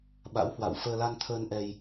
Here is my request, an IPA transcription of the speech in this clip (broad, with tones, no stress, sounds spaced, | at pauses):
ɓ a̰˧˥ w h w a̰˧˨ w f əː˧ l a˧ n t̪ʰ əː˧ n ʔ ɛ˧ j